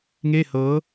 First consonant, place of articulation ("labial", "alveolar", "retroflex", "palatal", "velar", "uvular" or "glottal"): velar